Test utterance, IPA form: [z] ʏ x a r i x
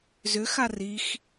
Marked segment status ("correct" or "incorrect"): correct